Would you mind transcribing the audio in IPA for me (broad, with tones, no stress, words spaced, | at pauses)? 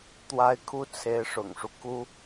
t̪wa˥ɪ̯ kʰu˥t͡sʰe˧˥ɪ̯ʂʊ̰˨˩ŋʂu˦ ku˥